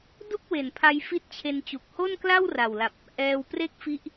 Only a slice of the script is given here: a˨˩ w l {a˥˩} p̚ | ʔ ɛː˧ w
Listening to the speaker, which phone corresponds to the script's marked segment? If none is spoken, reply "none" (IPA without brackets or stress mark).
a˨˩